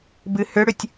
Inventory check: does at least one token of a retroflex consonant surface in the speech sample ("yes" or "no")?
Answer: yes